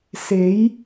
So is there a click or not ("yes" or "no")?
no